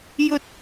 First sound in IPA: j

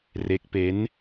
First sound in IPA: r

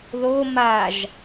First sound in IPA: ð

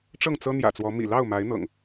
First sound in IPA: ʈ͡ʂ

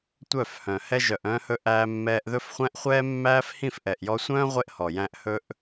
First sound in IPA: tʷ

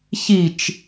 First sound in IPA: ç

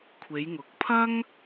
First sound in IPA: kʷʰ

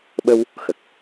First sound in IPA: ɓ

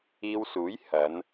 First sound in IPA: iː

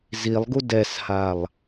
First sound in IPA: z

